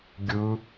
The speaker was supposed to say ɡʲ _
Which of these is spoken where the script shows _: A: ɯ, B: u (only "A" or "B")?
A